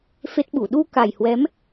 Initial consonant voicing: voiceless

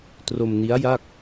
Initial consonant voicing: voiceless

